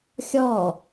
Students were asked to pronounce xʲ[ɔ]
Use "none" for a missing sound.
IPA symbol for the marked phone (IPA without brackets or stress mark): ɔ